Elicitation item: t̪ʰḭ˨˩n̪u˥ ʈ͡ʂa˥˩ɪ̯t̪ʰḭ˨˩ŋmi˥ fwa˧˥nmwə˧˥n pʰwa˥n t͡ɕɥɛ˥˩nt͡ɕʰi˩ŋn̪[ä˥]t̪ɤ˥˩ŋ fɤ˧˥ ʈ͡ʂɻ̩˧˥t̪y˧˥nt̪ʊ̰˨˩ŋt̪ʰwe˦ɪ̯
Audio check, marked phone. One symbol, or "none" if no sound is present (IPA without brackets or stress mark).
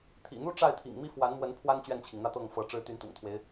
ä˥˧